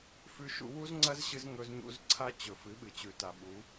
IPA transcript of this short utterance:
f ʉ˦ ʃ ṵ˦ w u˦ z ŋ͡ǀ ɐ˦ z ɕ ɨ˧ z ŋ ɵ˧ z ɲ ṵ˧ z ǀʰ a˦ t͡ɕ ɵ˨ f ɨ˨˦ ɓ ɨ˨ t͡ɕ ʉ˨ t a˨ ɓ u˨˦

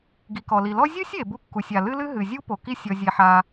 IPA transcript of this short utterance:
ɡ i˩ k ɔ˩ l i˩ l ɔ˥ zʲ u˥ sʲ e˩ b u˥ kː u˩ sʲ a˩ l ɨ˥ l ɨ˥ ɦ ɨ˩ zʲ u˥ p o˩ k i˥ sʲ ɔ˩ zʲ e˩ ħ a˩

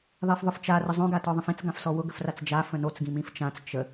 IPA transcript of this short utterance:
ðˤ i f ðˤ ʊ f t͡ʃ a r ə zˤ õ ɡ a t ɔ ðˤ ə̃ f ĩ t͡s ɡ ã f s ɔ w ʊ ɡ ə f r a t͡s d͡ʒ a f ə̃ n o t͡s ɡ ĩ m ĩ f t͡ʃ ã t͡s t͡ʃ ə

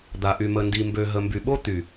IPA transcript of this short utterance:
d̪ a˨ ʔ y˨ m ə˨ n d i˨ m b ø˨ ɦ ə˨ m b y˨ ɓ o˦ t̪ y˨

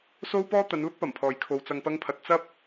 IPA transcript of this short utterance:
s o˥ w p ɔː˥ t̪ ɐ˨˧ n l ʊ˥ k̚ p ɐ˨˩ m pʰ ɔː˨ j kʰ o˨ w t͡s ɐ˨ ŋ p ɐ˧ ŋ pʰ ɐ˨ t̚ t͡s ɐ˥ p̚

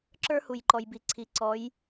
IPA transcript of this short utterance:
ǁ ə˞˥ h u˨ j ǃ ɔ˨ j b i˨ ǀʰ i˨ ǀ ɔ˨˥ j

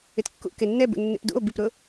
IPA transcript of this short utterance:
ɪ t kː ṵ k e nː ɛ b ṵ nː ḛ p d ṵ o̯ b i p ɾ ʊ

